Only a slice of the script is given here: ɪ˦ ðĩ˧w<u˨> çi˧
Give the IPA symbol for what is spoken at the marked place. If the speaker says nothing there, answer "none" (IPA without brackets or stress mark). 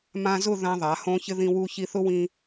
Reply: u˧